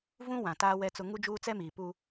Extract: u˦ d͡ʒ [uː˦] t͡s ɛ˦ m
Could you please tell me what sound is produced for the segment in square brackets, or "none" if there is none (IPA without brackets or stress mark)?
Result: uː˦